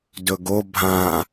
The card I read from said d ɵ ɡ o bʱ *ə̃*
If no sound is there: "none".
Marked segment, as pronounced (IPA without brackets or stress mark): ã